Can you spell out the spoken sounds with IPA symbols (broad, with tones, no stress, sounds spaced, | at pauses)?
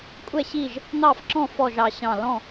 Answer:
kʷʼ ɛ˥˨ ɕ i˥˨ ʒ | n̪ ɑ˥˨ f ǁ ɔ̃˥˨ f ɔ˥˨ ʒ ɑ˧˩ ɕ ɑ̃˧˩ l ɔ̃˥˨